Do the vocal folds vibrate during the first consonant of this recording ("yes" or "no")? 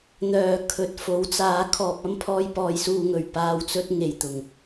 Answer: yes